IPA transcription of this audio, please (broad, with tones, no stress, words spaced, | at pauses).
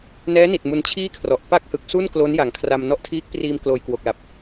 nɛː˦˥ni˨˩t̚ mu˧nt͡ɕʰiː˥˩kʰrɔ˨˩ʔ pa˥˩k̚ hɯ˨˩k̚su˥˩n klo˦˥nja˨˩ŋkʰra˧m nɔ˦˥ʔtʰiː˦˥k̚ priː˧mkloː˨˩jkwo˨˩k̚ la˨˩p̚